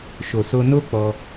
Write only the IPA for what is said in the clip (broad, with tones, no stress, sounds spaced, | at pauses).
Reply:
ʃ o˨ s o˧ n o˦ k͡p ɔ˧